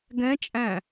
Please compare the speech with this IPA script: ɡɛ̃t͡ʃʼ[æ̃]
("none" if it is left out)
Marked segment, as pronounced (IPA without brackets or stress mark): æ̃